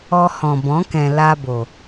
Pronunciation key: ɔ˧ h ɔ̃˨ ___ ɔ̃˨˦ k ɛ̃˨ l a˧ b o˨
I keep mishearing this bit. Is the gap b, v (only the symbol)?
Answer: b